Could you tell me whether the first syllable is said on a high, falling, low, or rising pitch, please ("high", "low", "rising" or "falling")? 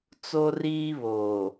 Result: high